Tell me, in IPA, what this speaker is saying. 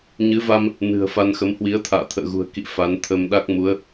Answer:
ɲ ɨ˨˦ v a˧ m | n ɨ̤˨˩ ə̯ f a˧ n x ə˨˦ m h w i˨˦ ə̯ t̪ʰ a̰ː˧˨ t̪ʰ ə̰ː˧˨ ɣ ṳ˨˩ ə̯ k ḭ˧˨ f a˨˦ n t̪ʰ ə˧ m ɗ a˦˥ k̚ m u˨˦ ə̯

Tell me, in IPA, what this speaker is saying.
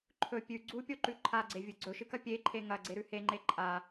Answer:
ǃʰ ɵ pʲ ʉ ɡ͡ǀ u pʲ o ǃ ʉ ǃʰ a ɡ͡ǀ e vʲ ɨ ɡ͡ǀ ɵ ʃ ɨ k ɐ pʲ e ǃʰ e ŋ ɐ ɡ͡ǀ e ɾ ʉ h e ŋ͡ǃ e ǃʼ a

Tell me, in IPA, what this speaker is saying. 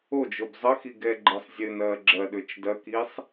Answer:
o d͡ʒ o b zˤ ə x i ɡ ɛ ɡ͡ǃ ɘ sˤ zʲ ɘ n ɐː ɡ͡ǁ ɐ ɗ ø t͡ʃ d ɐ k i sˤ

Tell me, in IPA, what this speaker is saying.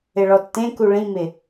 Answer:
ɪ ɭ ɔ tː ẽ k u ɭ ĩ m ɪ

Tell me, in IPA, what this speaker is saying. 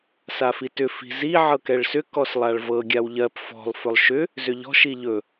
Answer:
s a f i t ʏ f i̤ z i ʕ ɤ k ɛ ɭ s ʏ k ɔ s lˠ a ɭ v ɤ ɡʲ a w ʎ ɜ p f ɔ̤ lˠ f ɵ lˠ ʃ ʏ | z ʏ ʎ ɔ̤ ʃ i ʎ ɵ

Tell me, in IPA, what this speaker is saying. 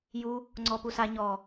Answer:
j u | ŋ͡ǀ ɔ p u s a ɲ ɔ

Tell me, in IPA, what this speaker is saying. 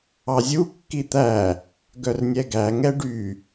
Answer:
ɑ zʲ u kː i t̪ æ | ɡ œ r nʲ ɛ ɡ æ ŋ ɛ ɖ y

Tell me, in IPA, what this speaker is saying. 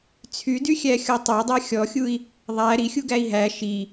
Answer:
t͡sʰ y d y xʲ æ xʲ ɔ tˤ æ dˤ æ xʲ ɔ xʲ u i̯ | ðˤ æ ɾ i xʲ u ɡ æ i̯ ɦ æ ʃ i

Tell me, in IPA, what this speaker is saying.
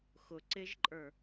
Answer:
x ʊ ǀ ɪ ʒ ǃʼ ə˞

